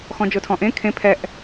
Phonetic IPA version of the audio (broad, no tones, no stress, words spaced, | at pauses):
xɔ̃d͡ʒotʰɔ̃ʔẽ kʰẽ pʰɛʔ